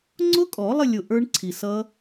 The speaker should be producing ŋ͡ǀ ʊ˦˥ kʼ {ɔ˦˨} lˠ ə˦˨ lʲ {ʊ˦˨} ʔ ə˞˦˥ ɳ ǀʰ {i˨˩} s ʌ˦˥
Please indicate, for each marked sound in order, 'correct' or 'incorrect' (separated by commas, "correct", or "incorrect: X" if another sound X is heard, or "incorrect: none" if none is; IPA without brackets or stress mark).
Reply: incorrect: ɔ˨˩˦, incorrect: ʊ˨˩, correct